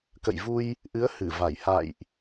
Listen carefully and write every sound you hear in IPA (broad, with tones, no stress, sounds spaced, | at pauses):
k ə̰˧˨ j v u˧ j | ʔ ɨ˨˦ ə̯ h ɨ˧˩ v a˧˩ j h a̰˧˨ j ʔ